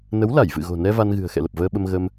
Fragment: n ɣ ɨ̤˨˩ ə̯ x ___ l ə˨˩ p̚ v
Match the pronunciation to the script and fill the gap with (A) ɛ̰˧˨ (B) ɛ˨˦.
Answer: A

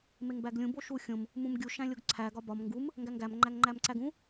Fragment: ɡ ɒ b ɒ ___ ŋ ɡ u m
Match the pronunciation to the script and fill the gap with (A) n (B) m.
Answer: B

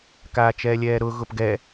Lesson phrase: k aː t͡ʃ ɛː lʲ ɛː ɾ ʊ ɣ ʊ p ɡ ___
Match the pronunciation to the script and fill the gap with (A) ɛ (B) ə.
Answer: A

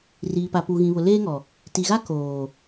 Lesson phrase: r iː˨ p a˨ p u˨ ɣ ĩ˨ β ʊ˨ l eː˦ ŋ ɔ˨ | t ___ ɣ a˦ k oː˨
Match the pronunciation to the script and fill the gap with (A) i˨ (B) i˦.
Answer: A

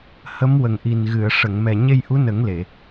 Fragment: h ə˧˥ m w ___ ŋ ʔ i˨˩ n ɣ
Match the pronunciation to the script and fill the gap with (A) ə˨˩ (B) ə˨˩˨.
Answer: A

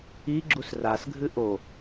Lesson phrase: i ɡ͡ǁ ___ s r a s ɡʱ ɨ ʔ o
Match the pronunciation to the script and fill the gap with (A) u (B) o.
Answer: A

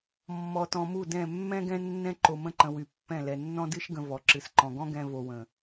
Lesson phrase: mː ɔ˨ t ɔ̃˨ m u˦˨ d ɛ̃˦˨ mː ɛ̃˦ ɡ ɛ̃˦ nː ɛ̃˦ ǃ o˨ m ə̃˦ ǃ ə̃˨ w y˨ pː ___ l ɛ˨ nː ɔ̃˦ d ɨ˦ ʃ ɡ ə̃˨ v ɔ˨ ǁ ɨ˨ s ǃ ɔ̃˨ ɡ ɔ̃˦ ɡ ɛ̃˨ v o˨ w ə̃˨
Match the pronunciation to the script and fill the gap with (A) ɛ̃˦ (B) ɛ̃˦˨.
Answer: B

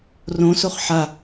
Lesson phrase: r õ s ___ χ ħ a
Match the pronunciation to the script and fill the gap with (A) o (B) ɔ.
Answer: A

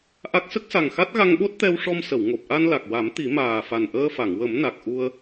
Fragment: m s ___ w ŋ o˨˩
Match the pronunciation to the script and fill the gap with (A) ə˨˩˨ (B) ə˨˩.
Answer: A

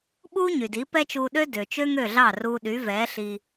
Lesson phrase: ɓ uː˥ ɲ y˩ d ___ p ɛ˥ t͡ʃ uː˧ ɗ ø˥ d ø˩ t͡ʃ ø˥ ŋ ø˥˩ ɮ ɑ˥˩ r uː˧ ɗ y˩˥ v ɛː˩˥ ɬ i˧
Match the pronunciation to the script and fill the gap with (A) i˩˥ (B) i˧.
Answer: A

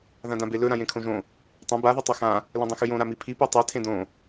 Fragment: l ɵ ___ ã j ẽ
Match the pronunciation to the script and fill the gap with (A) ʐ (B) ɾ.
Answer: B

